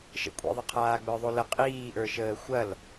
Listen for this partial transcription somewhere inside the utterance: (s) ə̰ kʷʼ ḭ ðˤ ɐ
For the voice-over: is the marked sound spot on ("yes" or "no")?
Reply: no